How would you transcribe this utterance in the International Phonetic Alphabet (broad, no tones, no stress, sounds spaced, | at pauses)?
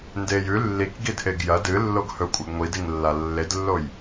n d e j ʉ lː i k ɡ i d ʔ e ɡ j ɐ d ɨ lː o ɡ h ɵ kʷʼ a ɡ ŋʷ i d i ŋ lː a lː e d lː o j